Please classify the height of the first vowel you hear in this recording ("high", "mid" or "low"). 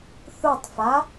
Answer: high